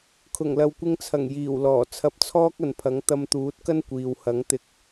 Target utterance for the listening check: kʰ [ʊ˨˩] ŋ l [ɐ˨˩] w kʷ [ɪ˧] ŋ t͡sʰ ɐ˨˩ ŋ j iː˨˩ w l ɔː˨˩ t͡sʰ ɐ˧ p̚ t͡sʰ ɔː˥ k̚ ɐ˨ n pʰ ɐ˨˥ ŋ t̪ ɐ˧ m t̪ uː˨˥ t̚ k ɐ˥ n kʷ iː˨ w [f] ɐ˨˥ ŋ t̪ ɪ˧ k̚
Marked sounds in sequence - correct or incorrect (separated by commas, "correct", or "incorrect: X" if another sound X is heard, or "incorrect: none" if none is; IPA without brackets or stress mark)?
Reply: correct, incorrect: ɐ˨, correct, incorrect: h